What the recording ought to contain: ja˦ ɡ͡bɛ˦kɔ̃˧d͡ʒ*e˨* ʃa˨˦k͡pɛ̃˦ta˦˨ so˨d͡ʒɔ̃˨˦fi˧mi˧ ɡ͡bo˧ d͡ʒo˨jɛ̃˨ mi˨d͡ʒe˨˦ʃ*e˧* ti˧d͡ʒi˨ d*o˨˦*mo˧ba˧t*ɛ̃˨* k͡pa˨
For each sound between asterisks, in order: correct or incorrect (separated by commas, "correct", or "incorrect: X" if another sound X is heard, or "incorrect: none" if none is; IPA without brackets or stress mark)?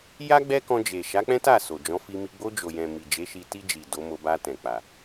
correct, incorrect: i˧, correct, correct